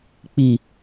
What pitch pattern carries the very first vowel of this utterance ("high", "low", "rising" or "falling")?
low